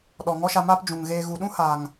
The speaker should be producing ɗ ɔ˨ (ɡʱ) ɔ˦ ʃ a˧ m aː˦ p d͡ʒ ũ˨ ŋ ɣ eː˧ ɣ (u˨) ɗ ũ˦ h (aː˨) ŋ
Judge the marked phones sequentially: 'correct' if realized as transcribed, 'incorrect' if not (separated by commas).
incorrect, correct, correct